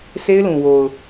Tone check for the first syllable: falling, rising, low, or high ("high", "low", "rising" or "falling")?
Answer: high